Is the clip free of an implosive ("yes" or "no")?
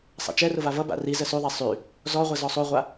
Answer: yes